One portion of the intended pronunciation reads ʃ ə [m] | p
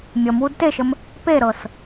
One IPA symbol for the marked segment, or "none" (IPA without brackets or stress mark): m